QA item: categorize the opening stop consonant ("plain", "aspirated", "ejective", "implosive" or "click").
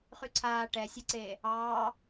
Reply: click